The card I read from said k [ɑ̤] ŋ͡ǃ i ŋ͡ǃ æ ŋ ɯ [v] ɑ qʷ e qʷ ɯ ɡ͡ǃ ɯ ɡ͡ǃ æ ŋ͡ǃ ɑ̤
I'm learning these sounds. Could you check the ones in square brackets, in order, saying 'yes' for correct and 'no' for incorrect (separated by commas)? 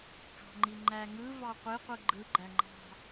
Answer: yes, yes